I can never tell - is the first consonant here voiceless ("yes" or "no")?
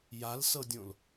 no